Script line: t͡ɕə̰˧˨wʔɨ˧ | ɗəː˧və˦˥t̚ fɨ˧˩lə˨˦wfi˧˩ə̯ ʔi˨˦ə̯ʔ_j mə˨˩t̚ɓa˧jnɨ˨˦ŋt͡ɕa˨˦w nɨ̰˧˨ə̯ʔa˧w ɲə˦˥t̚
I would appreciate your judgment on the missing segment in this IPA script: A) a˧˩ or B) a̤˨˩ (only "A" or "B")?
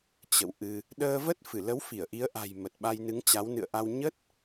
B